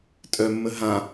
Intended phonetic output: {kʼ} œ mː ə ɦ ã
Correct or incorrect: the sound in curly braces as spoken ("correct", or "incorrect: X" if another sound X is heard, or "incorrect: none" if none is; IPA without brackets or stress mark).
incorrect: tʼ